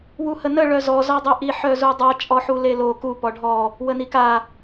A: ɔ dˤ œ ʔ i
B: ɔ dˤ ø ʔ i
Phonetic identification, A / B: B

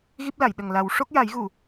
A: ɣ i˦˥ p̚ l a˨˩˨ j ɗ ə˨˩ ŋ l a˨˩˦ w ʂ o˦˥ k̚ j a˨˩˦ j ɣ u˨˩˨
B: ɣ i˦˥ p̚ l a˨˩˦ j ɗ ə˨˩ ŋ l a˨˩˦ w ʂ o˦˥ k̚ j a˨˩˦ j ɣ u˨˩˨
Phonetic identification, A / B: A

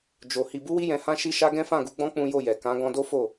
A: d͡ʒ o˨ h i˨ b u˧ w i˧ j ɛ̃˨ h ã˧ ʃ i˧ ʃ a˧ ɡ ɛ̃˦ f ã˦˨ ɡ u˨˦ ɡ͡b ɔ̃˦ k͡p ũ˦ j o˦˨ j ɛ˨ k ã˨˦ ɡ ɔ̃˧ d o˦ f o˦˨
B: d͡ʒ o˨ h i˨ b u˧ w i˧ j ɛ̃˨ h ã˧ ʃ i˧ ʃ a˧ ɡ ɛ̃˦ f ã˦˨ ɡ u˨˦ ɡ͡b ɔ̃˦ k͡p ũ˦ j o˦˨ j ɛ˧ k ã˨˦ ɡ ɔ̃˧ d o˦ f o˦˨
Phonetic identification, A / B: A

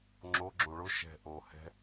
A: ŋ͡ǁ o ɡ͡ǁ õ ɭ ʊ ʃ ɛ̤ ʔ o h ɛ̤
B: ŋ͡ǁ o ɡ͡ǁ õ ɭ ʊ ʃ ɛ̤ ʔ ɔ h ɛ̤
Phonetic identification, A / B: A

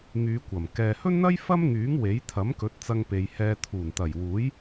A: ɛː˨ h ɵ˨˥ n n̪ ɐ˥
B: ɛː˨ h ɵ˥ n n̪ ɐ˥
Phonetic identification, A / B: B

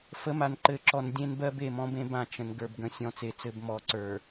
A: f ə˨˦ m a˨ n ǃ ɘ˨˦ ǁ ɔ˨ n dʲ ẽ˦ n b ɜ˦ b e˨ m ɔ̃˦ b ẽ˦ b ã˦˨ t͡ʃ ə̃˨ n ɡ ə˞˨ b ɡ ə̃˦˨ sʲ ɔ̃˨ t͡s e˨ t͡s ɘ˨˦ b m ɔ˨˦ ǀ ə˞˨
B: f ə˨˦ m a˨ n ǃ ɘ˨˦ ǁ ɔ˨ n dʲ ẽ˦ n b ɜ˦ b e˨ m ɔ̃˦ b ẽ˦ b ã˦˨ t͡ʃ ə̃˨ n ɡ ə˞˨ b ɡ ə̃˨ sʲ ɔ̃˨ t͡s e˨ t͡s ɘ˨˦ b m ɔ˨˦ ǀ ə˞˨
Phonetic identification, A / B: B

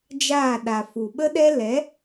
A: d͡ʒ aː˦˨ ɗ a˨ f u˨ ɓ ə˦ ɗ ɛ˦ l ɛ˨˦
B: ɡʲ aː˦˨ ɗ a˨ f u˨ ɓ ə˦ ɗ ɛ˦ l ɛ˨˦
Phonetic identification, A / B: A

